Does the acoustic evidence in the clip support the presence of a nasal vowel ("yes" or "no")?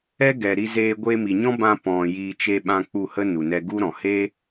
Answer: yes